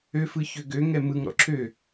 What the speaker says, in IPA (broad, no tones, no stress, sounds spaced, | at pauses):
ø f ɯ ç ø ɡ ø ŋ ɛ m ɯ ŋ ɾ ɔ̰ ǁʰ ø